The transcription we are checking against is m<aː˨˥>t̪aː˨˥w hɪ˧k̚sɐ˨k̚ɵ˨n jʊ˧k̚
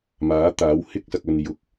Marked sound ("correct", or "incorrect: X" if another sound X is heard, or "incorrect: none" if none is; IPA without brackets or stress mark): correct